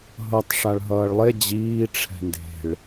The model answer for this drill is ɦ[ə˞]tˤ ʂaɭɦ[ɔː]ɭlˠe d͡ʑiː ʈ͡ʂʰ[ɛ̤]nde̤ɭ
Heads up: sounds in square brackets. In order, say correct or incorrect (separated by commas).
incorrect, incorrect, correct